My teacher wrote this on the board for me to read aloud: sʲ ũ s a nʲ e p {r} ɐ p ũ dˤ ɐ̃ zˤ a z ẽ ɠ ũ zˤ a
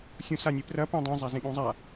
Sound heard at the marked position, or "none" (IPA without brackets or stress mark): r